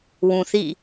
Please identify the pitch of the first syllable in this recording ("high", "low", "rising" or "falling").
low